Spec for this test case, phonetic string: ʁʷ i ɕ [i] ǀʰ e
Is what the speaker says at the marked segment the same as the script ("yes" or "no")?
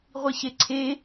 no